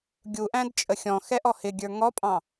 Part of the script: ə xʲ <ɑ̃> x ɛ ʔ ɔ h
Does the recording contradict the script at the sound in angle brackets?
yes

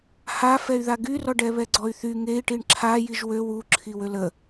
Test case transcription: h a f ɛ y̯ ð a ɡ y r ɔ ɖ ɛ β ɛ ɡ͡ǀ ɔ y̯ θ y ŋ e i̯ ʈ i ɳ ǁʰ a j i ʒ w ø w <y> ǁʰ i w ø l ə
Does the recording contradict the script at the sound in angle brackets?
yes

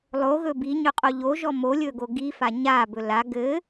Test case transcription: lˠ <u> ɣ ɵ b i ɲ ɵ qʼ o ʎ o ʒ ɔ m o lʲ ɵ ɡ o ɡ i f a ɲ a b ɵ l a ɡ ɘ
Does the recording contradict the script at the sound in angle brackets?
yes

